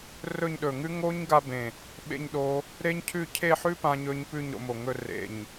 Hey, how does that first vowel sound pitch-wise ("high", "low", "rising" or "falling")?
falling